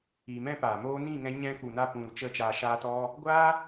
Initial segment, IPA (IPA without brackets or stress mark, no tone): iː